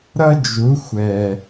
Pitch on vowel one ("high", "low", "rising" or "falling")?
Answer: high